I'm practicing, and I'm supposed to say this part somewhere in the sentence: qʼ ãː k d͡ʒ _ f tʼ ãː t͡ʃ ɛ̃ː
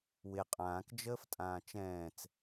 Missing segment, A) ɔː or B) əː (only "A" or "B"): B